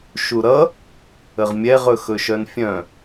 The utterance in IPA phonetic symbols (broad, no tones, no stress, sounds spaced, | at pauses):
ʃ u ɾ ʌ | ə ʁ mʲ ɛ ʁ ɵ x ɵ ʃ œ n fʲ œ̃